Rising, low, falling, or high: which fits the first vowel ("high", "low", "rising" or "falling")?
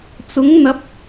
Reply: rising